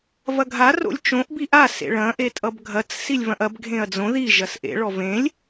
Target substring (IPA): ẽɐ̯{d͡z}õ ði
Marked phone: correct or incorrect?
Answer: correct